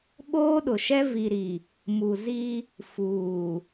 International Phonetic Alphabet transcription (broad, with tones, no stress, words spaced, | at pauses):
ɓoː˦ɗʊ˨ʃɛ˦ vi˨ɾi˨ | mu˨zi˦ | fuː˨